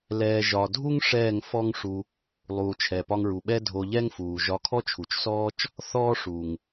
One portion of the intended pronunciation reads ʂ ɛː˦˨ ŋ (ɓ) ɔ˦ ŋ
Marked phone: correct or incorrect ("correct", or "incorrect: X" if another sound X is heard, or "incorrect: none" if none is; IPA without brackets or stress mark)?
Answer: incorrect: f